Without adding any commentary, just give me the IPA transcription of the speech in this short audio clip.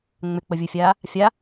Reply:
ŋ͡m ʏ k͡p ə vʲ ɯ fʲ aː | fʲ a

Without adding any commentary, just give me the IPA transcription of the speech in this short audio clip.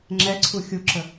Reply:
ŋ͡ǁ ɛ ǀʰ u xʲ u ǁ ə

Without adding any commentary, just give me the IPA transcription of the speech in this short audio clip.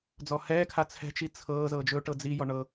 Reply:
d͡z ɔ h ɛː kʰ a t͡sʰ ɛ̤ t͡ʃ i t͡sʰ ɤː z ɤ d͡ʒ ɵ ʈ ɤ d͡z i j ɔ ɳ ɤ

